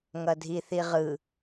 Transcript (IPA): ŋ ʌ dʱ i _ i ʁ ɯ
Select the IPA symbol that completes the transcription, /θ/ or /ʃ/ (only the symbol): θ